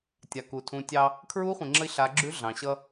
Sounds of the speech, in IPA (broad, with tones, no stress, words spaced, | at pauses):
tʲa˩ku˩tʰũ˩˧tʲɑ˧ | kʰɹu˧˥χʷĩ˩ŋ͡ǁə˧i̯ ɬa˩˧ ɡ͡ǁʉ˧˥ɮɑ̃˩ɕʌ˧